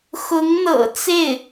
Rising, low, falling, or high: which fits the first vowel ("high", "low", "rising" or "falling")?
rising